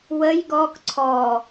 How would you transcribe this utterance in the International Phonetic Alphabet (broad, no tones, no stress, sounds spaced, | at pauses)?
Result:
w ə j ɡ ɔ k ǀʰ ɔ